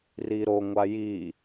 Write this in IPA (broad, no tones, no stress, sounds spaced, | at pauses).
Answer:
r i ɾ o ŋʷ a j i